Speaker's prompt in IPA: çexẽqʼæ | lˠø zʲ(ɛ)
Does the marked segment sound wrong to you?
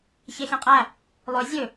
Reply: yes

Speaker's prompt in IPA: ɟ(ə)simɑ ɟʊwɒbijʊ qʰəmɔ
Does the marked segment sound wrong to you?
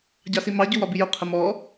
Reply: yes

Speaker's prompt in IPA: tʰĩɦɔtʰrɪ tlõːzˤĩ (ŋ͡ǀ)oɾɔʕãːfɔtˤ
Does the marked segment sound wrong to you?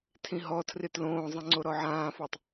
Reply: no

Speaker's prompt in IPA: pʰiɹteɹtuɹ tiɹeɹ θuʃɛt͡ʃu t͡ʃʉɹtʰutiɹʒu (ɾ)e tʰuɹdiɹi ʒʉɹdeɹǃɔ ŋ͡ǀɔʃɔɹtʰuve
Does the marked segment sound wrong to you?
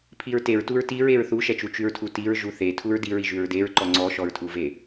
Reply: yes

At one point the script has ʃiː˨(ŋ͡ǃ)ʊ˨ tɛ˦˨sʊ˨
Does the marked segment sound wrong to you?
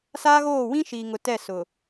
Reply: yes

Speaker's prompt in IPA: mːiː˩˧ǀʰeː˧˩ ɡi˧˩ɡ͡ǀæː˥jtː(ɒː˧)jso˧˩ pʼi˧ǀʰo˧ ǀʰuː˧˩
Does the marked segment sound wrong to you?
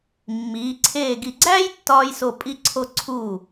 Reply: no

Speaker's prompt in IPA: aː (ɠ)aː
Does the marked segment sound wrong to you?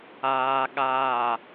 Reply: no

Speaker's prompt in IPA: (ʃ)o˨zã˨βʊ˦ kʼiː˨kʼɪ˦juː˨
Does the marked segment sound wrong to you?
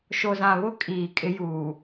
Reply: no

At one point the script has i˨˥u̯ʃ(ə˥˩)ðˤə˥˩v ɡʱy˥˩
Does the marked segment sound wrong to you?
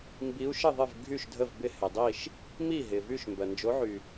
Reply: no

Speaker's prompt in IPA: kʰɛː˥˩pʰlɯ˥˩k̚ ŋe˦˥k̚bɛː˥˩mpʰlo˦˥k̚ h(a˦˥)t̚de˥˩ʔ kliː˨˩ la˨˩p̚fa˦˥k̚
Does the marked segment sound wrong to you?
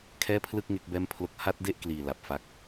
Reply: no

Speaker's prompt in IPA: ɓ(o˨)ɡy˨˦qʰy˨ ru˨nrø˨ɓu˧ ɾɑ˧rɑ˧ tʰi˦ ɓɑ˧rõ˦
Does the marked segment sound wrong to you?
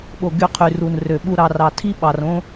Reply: no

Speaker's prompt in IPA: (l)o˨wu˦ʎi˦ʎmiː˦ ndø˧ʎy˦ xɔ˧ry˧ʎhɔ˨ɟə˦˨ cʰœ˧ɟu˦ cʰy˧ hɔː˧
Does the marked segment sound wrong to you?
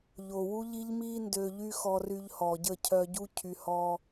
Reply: yes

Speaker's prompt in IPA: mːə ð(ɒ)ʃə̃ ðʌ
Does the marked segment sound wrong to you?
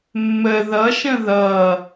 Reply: yes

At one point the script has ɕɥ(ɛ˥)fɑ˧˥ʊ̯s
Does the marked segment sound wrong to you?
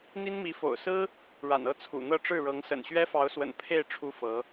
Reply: no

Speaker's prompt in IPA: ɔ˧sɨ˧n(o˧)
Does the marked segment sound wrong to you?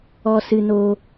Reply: no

